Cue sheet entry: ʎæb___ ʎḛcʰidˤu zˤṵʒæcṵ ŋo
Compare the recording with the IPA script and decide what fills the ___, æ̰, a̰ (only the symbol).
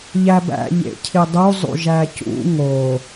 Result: æ̰